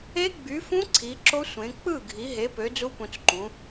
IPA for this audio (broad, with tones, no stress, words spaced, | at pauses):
e˦˥ɡ͡by˨˦fũ˦˥ ǀʰi˨˦ǁo˦˥ sʷẽ˨˦ k͡pɯ˥˨ɡʱi˨˦ɦe˨˦pø˨˦ d͡zu˦˥pũ˨˦t͡sǃũ˨˦